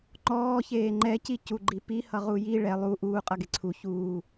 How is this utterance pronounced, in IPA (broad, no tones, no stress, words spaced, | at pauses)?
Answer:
ŋ͡ǃɔː çeːŋ͡ǃɛ cicuɡ͡ǃipi hʌʁuji ɭɛ lˠu ʔuː qʼʌɡeǀʰu çuː